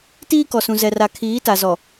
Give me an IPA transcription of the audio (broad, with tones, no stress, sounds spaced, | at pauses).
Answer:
t iː˦ k ɔ˨ s ũ˨ z ɛ˨ r a˨ kʰ iː˨˦ t a˨ z ɔ˨